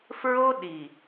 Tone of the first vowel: high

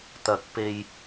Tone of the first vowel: rising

